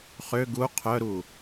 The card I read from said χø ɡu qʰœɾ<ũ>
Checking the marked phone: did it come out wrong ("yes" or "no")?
yes